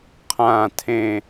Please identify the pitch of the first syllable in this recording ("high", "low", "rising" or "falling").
falling